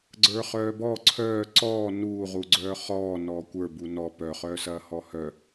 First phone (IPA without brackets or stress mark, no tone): ɡ͡ǀ